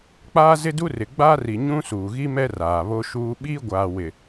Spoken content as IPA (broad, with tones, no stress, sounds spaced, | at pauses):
k͡p aː˦ z ɪ˦ d u˦ r ɪ˨ ɡ͡b a˦ r i˨ ɲ ũ˦ s uː˨ ɣ i˦ m ɛ˦ r aː˨ β o˦ ʃ uː˦ ɓ iː˦ ɡʷ aː˨ w ɪ˨